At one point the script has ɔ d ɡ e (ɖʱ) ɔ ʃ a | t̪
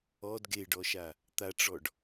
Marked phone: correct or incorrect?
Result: incorrect